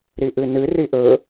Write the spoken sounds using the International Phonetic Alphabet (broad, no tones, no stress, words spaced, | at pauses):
ɾiʔɨnɨ riʔɵ